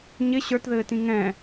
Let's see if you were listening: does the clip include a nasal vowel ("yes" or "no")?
yes